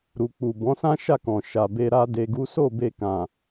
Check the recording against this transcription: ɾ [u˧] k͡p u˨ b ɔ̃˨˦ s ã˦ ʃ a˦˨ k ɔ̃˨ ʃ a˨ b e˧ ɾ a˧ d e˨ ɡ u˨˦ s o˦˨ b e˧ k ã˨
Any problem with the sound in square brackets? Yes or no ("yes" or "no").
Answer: yes